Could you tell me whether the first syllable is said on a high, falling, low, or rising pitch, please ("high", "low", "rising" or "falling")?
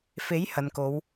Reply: rising